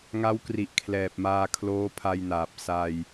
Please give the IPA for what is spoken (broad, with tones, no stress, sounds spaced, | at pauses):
ŋ a˦˥ w k r i˨˩ ʔ kʰ l ɛː˨˩ p̚ m aː˧ kʰ l oː˦˥ pʰ a˧ j n aː˨˩ p̚ s a˧ j